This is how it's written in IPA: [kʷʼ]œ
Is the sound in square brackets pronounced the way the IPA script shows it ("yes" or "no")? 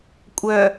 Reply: yes